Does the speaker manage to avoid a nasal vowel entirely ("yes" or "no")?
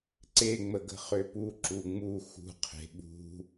yes